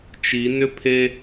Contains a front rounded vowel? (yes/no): yes